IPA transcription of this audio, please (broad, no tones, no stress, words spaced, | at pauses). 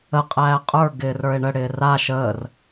ə qʼæːqʼə˞ ɡɪːrə˞e̯ɳə ɽɪːra ʃəːr